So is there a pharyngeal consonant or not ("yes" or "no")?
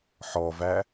yes